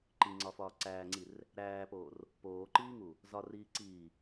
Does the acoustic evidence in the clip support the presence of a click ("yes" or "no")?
yes